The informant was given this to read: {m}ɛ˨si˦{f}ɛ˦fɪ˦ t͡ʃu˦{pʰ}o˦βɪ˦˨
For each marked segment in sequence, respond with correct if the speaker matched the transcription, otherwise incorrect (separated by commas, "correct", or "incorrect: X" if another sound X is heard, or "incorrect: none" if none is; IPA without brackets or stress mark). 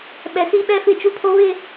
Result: incorrect: ɓ, incorrect: ɓ, correct